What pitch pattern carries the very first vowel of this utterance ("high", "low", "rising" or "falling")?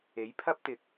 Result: rising